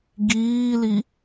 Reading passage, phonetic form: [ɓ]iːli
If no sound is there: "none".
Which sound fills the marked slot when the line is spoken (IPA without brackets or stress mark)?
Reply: ɡ